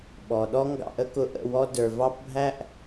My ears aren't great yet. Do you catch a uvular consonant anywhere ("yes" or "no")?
no